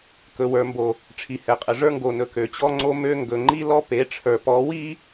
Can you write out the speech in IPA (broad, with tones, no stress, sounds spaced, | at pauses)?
k ɵ˨ w ə˞˨ m b o˨ | ʈ͡ʂʰ i˨ h ɛ˨ qʼ ə˨ ʐ ə˞˦ ŋ ɡ o˨ n ɵ˨ k ø˨ t͡ɕ ɔ˦ ŋ͡ǀ o˦ m ø˦ ŋ ɡ ɵ˨ ŋ͡ǃ i˦ l ɔ˦ p e˨˦ ʈ͡ʂʰ ə˞˨ p ɔ˨˦ w i˦